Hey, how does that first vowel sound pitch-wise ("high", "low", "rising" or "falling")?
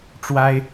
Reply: high